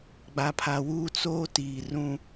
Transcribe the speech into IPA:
ɡ͡b a˨ pʰ a˨ w uː˦ t͡s oː˦ t iː˨ r ũ˦

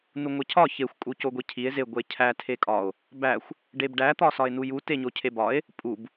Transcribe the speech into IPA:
n u ŋʷ e cʰ ɒ ç e xʷ kʼ u c o ɡʷ i cʰ i e̯ z e ɡʷ e cʰ æ tʰ e kʼ ɒ o̯ | b æ xʷ | ɖ e b ɖ æ t̪ ɒ s ɒ e̯ n u j u t e ɲ o cʰ e b ɒ e̯ | pʼ u b

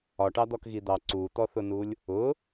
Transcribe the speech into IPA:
ɒ ʈ ɑ d̪ ɔ k ɣ i d̪ ɑ ǀ u t̪ ɔ θ ʊ n u lʲ | ʊ

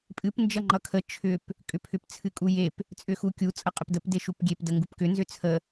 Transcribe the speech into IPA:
pʼ ɨ p n d͡ʒ ʌ ŋ͡ǃ ʌ kʰ ə t͡ʃʰ ʏ p | kʼ ʏ pʰ ʏ p t͡sʰ ɨ kʼ u j e p | t͡sʼ ʏ x u kʲ u t͡sʼ ʌ qʼ ə p d ə p d e ʃ u p ɡʲ e p d ə ŋ ɡ u p k ʏ n z ʏ t͡sʰ ə

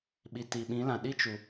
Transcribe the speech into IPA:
ɓ i˨ t i˨ ɓ ĩ˨˦ l ã˨ ɗ i˦ t͡ʃ u˨

